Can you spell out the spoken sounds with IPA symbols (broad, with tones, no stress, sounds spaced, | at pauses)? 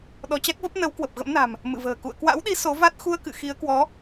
ɗ ɔ˧ t͡ɕ a˦˥ k̚ v ə˦˥ p̚ n ə˨˦ w k w ə˨˩ p̚ ɣ ə̰˧˥ m n a̤˨˩ m | m ɨ̰˧˨ v ə̤ː˨˩ k ṵ˧˨ ə̯ k w a̰˧˥ w ɗ i˨˦ s o˨˦ v a˦˥ t̚ x u˧ ə̯ k ɨ̰˧˨ x i˨˦ ə̯ k w ɔ˨˦